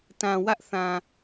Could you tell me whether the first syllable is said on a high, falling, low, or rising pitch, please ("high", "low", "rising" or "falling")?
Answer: low